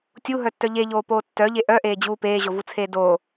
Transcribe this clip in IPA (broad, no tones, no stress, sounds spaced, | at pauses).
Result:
tʲ u ɦ œ tː œ ʎ e ʎ oː p oː tː œ ʎ e ʔ œ ʔ eː d͡ʑ uː p eː ʑ o v u t͡sʰ eː d o